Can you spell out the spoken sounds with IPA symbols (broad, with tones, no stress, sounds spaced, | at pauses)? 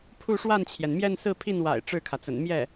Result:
pʰ u˥˧ ʂ w a˥˩ n t͡ɕʰ j ɛ˩ n m j ɛ˥˧ n s ɹ̩˥˧ pʰ i˥˩ n w a̰˨˩ ɪ̯ ʈ͡ʂ ɻ̩˥˩ kʰ ä˩ t͡s ə̰˨˩ n m j ɛ˥˩